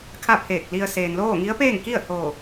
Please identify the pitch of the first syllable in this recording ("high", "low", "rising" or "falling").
falling